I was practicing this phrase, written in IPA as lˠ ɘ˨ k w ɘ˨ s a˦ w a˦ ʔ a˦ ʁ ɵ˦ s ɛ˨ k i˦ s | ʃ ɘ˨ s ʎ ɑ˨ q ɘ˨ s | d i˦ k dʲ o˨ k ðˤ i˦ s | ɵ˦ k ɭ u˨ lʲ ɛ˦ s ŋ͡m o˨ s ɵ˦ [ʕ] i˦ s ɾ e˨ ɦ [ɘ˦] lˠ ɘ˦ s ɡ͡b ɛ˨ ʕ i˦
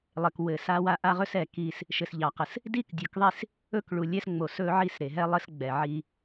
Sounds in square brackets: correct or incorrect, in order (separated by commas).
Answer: correct, incorrect